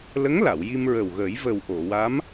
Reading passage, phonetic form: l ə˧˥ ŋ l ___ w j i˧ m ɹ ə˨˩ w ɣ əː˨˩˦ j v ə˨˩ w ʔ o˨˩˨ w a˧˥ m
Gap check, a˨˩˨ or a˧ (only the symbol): a˨˩˨